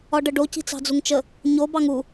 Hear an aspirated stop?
no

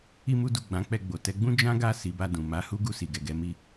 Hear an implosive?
no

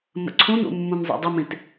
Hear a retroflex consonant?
no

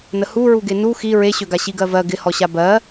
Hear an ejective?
no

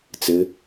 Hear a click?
no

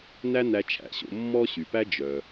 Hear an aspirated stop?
yes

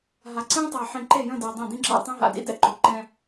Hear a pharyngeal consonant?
yes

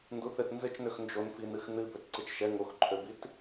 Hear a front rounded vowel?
yes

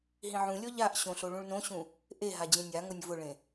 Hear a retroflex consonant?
yes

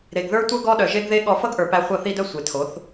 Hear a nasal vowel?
no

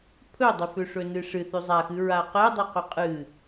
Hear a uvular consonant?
yes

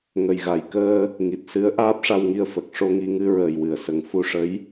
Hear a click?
no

